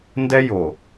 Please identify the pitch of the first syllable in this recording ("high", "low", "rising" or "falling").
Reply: high